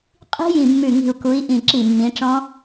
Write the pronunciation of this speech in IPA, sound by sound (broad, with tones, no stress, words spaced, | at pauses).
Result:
qʼi̤˦˥jĩ˧˩mːʉ˧˩ ŋi̤˧˩u̯ku˨˦i̯ ʔĩ˧˩ǁi˧˩mːĩ˨˦ʈ͡ʂɔ̃˦˥